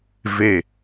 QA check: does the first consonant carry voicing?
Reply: yes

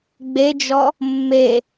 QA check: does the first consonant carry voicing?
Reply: yes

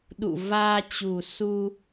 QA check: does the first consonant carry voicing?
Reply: yes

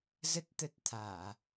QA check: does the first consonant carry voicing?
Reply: yes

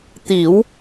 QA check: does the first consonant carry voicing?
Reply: no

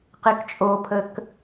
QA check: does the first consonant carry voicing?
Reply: no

